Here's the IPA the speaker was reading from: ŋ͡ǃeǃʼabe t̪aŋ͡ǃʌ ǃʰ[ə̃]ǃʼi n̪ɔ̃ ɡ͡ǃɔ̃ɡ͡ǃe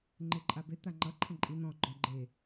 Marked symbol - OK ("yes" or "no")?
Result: yes